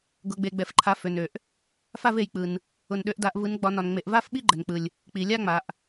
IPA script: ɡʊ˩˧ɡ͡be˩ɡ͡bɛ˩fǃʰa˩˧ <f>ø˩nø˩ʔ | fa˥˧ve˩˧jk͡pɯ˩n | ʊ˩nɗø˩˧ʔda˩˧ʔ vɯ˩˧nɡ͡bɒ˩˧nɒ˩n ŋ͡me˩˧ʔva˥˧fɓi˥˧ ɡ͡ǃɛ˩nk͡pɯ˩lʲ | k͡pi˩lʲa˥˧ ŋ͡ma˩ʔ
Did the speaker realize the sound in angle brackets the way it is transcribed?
yes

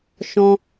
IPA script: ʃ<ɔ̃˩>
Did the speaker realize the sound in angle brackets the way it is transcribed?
yes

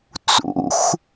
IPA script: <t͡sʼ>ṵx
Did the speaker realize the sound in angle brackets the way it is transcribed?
no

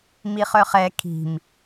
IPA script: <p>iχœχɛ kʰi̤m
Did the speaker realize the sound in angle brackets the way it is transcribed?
no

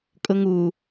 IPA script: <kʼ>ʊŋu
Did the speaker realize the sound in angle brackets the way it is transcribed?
yes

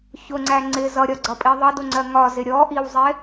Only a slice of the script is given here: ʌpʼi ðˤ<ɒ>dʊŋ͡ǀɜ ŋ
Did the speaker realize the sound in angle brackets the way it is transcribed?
no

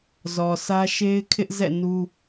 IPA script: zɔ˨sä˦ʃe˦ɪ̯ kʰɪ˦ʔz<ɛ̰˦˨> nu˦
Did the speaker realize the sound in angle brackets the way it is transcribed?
yes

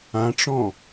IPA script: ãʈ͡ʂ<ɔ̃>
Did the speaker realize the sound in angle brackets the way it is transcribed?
yes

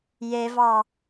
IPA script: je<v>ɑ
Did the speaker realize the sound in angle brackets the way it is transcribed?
yes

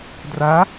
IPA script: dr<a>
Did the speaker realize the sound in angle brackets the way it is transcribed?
yes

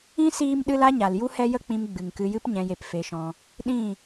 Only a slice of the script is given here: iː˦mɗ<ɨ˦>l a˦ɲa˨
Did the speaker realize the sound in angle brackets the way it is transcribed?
yes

